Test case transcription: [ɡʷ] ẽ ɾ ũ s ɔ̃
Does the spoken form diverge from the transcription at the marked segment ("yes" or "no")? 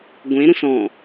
no